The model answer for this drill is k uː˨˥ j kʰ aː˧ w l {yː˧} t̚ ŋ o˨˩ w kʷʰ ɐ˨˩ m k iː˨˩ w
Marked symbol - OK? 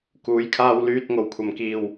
yes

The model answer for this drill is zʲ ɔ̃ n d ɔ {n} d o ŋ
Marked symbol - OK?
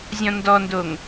yes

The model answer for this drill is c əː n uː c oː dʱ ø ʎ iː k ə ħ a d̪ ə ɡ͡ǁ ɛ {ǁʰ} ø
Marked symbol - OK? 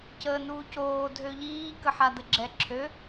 yes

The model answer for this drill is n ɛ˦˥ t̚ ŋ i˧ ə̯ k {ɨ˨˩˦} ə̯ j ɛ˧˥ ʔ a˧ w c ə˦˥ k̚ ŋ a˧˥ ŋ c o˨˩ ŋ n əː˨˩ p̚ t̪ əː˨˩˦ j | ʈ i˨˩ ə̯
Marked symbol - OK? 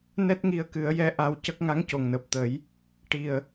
yes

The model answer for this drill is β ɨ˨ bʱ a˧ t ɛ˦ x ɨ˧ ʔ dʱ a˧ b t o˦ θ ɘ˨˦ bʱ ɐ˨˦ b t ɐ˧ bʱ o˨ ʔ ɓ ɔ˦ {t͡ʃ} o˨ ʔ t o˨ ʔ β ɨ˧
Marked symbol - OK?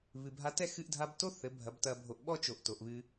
yes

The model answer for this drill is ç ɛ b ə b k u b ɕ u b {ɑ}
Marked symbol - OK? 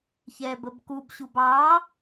yes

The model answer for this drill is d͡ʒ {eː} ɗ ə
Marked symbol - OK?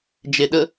no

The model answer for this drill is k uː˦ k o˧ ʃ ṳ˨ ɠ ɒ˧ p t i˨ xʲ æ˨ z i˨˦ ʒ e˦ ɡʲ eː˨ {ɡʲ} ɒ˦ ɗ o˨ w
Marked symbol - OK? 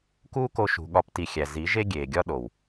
yes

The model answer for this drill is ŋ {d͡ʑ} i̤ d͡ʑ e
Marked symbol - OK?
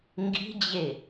no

